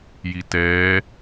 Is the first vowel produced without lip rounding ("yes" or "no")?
yes